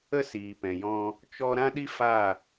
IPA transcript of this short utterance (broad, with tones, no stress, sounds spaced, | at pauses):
ə˦ s iː˨ p ɛ̃˨ j ɔ̃˧ | t͡ʃ ɔ˧ ɾ ã˦ ɗ i˦ f a˦˨